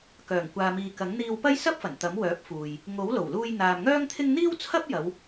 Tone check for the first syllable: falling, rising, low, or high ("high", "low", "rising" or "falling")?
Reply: low